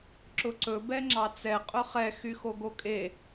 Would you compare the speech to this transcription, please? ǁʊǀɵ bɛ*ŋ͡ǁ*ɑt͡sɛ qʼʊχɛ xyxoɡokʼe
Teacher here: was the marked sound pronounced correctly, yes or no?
yes